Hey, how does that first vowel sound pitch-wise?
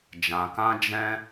low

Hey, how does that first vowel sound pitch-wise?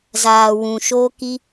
low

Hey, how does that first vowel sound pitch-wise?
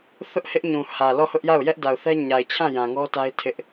high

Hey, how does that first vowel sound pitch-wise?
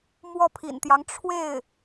falling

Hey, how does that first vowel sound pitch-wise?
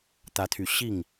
rising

